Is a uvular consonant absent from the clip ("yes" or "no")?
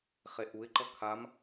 no